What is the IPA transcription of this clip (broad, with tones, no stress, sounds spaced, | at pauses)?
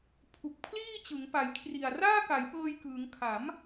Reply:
pʰ u˨˩ k̚ pʰ l iː˥˩ t͡ɕ ɯ˩˦ ŋ p a˩˦ j kʰ r i˨˩ a̯ r aː˥˩ k a˩˦ j p ɤː˧ j k ɯː˩˦ ŋ kʰ a˩˦ m